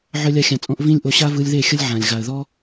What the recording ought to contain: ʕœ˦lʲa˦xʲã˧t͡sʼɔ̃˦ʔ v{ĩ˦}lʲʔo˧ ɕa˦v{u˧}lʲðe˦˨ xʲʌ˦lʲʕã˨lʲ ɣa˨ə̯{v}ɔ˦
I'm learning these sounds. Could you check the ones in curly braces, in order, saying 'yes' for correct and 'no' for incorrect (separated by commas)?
yes, no, no